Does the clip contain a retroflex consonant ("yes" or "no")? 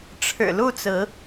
yes